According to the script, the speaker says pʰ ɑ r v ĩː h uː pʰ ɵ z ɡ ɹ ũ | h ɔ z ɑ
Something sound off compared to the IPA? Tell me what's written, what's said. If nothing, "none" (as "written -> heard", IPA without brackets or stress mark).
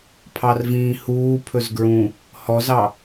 none